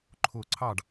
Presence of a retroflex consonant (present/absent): present